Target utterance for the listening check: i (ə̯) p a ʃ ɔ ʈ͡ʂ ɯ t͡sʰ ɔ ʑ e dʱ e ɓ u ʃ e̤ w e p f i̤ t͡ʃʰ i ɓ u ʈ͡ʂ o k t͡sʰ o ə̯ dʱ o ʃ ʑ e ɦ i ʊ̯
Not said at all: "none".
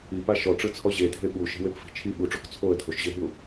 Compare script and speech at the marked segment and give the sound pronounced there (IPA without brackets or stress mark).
none